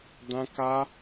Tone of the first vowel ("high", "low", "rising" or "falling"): high